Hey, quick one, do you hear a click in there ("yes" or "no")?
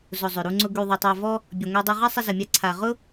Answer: yes